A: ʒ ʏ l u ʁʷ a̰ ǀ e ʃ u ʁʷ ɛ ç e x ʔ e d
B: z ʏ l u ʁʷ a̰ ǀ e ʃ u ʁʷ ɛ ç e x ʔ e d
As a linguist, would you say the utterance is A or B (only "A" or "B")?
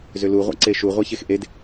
B